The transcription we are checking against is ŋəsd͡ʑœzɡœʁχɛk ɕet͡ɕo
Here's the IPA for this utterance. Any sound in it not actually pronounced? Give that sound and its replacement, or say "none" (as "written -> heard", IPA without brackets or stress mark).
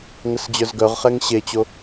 k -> ŋ